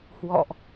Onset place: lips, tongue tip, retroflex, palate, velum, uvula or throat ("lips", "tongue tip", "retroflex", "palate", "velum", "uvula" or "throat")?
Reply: throat